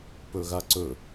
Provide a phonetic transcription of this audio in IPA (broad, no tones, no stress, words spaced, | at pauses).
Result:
pɵɣaǀɵ